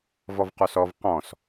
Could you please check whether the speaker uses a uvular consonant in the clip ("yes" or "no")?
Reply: yes